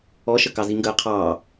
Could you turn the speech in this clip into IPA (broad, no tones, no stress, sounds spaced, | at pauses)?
ɔ ʃ ə k ɑ z i ŋ ɡ əː qʰ ɑː